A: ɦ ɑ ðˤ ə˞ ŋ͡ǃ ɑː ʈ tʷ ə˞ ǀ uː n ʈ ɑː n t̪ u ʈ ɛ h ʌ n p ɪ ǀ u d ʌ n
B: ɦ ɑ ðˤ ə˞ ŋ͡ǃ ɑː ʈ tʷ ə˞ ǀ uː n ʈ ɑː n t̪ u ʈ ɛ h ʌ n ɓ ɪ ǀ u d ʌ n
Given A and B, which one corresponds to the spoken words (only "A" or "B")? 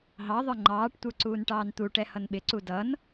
B